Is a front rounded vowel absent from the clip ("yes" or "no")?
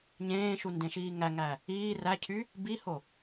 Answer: no